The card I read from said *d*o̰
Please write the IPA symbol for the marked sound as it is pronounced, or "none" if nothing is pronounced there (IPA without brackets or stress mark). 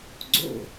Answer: ɡ͡ǀ